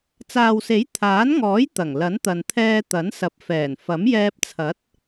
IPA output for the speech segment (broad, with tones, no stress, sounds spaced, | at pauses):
t͡s aː˨ w s e˨˥ j t̪ʰ aː˨˥ n ŋ ɔː˨˥ j t̪ ɐ˨˩ ŋ l ɐ˨˥ n t̪ ɐ˨ n t̪ʰ ɛː˧ t̪ ɐ˨˥ n s ɐ˨ p̚ f ɛː˨˩ n f ɐ˨˥ m j ɛː˧ p̚ t͡sʰ ɐ˨˥ t̚